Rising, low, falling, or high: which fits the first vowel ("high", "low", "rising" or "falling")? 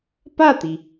falling